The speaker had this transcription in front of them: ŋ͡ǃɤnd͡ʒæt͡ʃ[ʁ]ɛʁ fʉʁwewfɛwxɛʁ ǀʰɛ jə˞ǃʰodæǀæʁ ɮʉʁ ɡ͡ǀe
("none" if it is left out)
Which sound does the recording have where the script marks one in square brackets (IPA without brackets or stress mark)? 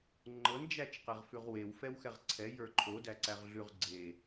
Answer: q